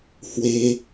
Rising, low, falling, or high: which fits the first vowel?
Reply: high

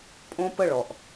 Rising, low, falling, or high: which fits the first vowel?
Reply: high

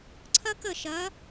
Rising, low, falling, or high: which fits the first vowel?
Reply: high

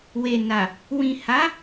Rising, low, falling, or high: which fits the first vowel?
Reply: low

